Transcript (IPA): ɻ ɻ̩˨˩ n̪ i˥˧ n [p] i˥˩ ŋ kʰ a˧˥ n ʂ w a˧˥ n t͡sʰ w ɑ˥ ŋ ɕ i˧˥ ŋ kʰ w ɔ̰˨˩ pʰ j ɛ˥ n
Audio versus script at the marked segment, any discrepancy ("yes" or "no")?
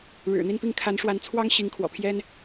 no